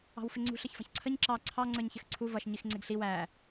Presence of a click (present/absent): present